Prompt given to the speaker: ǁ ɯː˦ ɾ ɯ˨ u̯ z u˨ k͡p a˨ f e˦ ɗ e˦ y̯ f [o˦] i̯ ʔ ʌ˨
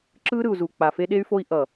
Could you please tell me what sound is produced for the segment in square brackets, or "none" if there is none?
o˦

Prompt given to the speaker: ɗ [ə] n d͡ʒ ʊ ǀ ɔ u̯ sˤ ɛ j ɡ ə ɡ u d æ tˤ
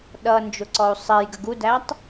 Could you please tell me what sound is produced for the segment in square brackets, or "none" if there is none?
ʌ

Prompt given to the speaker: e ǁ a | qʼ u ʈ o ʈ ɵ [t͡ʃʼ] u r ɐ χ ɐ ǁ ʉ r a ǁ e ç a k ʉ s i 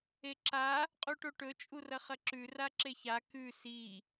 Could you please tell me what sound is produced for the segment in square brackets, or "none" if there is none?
t͡ʃʼ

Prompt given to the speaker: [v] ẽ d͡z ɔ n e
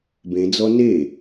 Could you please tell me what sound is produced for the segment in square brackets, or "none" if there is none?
b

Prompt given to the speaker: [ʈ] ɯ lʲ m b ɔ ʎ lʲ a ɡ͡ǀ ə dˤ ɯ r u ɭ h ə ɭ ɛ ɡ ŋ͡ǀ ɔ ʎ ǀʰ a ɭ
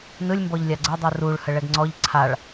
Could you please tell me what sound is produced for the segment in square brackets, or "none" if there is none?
n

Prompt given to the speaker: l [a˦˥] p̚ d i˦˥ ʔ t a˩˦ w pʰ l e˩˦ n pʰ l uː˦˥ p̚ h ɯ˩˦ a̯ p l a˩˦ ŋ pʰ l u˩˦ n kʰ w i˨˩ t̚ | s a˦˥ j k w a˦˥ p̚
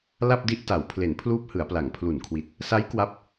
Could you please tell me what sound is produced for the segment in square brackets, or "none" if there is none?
a˥˩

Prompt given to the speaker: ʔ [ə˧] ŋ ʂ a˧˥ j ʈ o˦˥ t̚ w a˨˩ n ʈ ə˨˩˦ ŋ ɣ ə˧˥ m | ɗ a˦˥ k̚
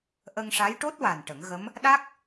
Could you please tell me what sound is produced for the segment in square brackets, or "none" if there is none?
ə˧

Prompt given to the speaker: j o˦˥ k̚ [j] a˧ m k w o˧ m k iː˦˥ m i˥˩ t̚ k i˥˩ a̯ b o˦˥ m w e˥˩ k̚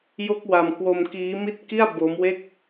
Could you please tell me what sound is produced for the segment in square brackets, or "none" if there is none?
w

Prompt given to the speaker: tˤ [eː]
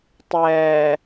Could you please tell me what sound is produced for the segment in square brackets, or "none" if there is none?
ɛː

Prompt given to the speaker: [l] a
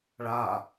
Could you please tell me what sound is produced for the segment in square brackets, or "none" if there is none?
ɭ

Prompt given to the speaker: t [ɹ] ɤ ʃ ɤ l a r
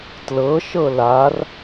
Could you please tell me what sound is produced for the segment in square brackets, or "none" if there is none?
l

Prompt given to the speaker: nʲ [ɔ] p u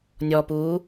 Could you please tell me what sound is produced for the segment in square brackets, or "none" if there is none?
ɔ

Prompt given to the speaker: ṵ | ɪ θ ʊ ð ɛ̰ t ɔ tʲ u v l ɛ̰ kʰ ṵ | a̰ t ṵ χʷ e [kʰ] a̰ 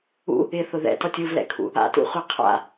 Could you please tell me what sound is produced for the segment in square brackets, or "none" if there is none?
qʰ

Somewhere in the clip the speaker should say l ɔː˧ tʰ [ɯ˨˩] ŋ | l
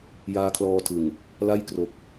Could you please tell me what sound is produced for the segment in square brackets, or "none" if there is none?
ɯ˨˩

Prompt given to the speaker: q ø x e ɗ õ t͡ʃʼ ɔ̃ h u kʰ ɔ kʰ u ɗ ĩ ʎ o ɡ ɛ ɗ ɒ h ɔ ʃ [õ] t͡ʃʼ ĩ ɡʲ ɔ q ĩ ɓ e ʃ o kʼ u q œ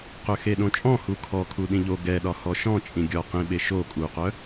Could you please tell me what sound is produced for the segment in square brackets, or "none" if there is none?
ɔ̃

